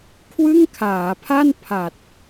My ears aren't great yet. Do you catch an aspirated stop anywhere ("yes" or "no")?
yes